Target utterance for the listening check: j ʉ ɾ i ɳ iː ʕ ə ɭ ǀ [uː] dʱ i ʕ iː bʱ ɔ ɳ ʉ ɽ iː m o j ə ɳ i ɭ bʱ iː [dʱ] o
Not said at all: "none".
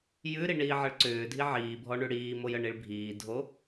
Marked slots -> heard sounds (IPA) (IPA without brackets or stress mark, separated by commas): ʏː, dʱ